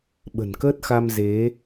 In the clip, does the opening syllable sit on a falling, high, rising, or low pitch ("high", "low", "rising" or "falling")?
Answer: low